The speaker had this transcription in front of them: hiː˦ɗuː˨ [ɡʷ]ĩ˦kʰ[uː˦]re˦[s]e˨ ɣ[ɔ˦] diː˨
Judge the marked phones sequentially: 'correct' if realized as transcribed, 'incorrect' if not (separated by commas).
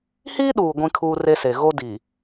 correct, correct, correct, incorrect